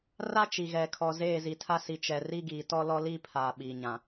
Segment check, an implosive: present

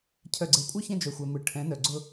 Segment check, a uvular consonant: absent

